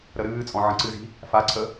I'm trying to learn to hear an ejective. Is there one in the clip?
yes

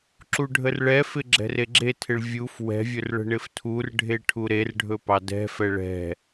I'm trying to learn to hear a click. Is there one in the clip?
yes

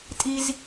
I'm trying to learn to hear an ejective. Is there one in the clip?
yes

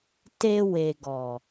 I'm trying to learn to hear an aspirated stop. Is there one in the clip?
no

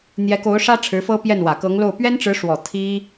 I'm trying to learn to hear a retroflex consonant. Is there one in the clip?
yes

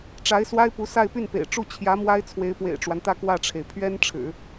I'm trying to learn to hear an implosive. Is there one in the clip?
no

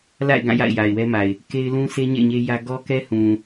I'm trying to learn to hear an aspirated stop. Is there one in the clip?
no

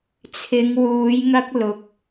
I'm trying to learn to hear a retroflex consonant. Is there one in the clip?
no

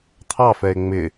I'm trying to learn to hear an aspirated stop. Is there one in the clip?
yes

